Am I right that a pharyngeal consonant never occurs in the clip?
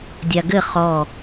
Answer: yes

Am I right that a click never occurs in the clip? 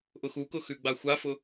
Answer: yes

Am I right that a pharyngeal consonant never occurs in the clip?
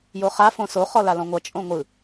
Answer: yes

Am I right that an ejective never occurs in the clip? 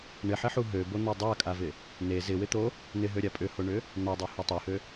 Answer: no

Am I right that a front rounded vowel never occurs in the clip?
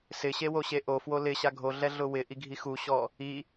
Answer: yes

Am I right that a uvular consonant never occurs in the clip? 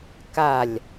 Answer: yes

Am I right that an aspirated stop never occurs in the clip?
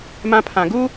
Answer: no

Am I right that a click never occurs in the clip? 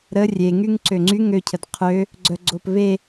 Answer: no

